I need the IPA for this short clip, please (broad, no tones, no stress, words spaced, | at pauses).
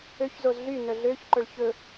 øçzoz ɮy nœɮøçǃœɭ çɵ